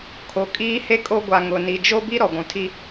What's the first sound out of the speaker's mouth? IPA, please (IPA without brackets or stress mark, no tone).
kʰ